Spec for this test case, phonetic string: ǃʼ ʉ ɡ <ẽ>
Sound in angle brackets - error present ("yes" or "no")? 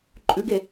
yes